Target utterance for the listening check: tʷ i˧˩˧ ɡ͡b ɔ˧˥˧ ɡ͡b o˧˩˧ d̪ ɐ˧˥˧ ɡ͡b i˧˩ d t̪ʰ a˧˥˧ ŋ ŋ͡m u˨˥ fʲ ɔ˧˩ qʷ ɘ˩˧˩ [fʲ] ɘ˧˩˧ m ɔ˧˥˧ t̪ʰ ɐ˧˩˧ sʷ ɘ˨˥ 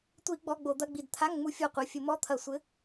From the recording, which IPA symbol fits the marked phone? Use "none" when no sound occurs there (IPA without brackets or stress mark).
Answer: fʲ